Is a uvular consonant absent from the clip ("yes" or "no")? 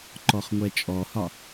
no